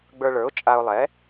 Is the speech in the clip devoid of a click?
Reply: yes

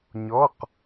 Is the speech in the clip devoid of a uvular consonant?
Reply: no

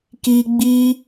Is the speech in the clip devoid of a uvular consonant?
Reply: yes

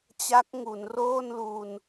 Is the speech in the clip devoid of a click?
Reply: yes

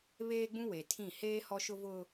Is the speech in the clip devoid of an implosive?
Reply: yes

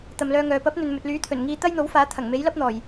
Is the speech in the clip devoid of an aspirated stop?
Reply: no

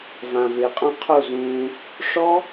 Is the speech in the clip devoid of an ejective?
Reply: no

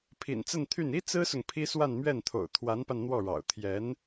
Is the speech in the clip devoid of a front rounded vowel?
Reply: no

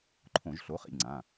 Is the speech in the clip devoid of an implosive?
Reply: yes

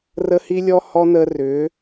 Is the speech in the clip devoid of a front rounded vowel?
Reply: no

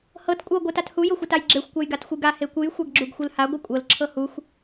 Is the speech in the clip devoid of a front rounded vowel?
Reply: yes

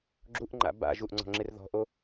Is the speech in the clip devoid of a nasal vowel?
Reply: yes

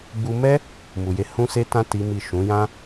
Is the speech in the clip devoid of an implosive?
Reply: yes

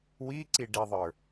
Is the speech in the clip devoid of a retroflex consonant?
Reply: no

